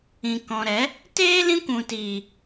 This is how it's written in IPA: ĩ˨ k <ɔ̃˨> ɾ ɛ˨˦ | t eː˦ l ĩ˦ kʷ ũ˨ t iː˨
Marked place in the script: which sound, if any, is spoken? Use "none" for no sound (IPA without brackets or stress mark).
ɔ̃˨